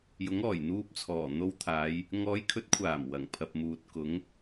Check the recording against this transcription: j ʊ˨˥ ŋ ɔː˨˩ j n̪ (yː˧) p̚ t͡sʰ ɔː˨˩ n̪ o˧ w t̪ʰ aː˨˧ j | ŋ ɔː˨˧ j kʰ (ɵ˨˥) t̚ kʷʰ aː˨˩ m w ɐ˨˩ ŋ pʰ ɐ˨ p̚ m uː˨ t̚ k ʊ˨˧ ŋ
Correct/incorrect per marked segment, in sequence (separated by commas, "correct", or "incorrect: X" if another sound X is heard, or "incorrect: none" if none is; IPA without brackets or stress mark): incorrect: uː˧, correct